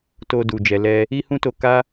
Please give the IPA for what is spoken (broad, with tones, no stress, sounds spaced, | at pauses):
t o˧ d u˨ d͡ʒ ɛ˨ l ɛ˧ | i˦ h ũ˦ t o˧ k a˦